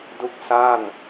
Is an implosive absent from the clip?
yes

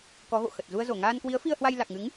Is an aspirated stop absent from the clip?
yes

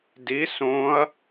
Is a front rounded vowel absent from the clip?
yes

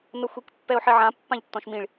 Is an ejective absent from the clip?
yes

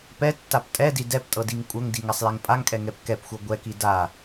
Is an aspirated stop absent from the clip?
yes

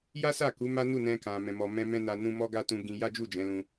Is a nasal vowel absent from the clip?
no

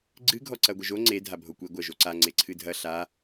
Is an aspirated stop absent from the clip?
no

